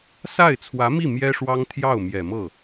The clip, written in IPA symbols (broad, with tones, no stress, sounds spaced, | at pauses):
s a˥˩ ɪ̯ t͡sʰ w ä˧˥ m i˥˩ m j ɛ˥ ʂ w ɑ˥ ŋ t̪ʰ j ɑ˥˩ ʊ̯ m j ɛ˨˩ m ɤ˥˩